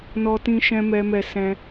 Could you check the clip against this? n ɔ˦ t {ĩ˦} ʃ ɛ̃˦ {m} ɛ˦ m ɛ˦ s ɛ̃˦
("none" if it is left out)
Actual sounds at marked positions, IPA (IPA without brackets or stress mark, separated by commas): ĩ˦, m